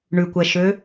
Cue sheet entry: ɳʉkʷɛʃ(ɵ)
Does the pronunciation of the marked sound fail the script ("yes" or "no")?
yes